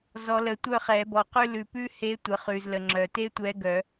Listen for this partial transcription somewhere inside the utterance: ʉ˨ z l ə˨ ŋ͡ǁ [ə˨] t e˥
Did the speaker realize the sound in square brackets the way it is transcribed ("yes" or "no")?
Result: no